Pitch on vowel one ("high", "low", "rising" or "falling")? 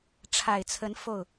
low